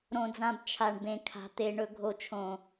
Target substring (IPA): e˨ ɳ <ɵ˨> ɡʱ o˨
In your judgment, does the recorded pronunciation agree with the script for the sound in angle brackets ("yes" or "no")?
yes